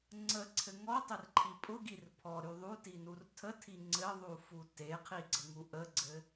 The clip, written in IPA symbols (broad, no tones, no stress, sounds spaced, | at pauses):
ŋ͡ǀ ə ǀʰ ɘ ŋ ɔ tˤ ɘ r ǃʰ i pʼ ʊ ɡ i r pʰ ɔ ɾ y ðˤ u t i n u r tʰ ə tʰ i ŋ͡ǀ ɘ ðˤ u f u t e qʰ i ɡ͡ǀ ə ŋ u ʔ ə ɡ͡ǀ ɘ